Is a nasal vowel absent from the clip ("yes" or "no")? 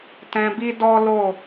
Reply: no